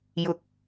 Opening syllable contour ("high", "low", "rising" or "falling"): rising